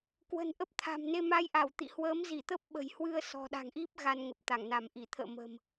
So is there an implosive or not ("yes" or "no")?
yes